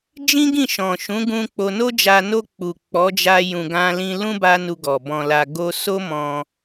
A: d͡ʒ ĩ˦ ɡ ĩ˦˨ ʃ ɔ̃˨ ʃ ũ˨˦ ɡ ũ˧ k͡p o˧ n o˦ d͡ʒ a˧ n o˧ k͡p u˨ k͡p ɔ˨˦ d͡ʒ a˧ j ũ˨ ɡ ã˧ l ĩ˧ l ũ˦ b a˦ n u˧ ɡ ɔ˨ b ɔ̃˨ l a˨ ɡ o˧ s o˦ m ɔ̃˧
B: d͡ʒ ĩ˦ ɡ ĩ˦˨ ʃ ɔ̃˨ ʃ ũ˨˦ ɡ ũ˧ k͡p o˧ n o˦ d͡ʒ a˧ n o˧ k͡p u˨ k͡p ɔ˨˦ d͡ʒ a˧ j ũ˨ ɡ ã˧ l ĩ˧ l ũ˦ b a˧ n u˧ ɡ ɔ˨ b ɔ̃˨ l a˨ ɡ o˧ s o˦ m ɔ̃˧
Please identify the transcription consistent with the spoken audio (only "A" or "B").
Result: A